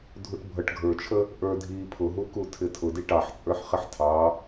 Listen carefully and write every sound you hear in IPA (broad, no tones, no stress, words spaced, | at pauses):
dʱuʈbʱʌʈ ɡʱə˞t͡ʃʰə | ʔə˞dʱi pʰʊɦuku tʰɪtʰʊdi ʈɑħt͡sʼə˞ħ χɪħtʰɑ